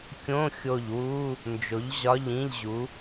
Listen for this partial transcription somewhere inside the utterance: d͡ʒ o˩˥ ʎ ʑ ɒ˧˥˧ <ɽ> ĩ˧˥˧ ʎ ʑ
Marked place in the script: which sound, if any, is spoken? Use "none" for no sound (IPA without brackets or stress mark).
ʎ